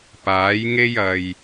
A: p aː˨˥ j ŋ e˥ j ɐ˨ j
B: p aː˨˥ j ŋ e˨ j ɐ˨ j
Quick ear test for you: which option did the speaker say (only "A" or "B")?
A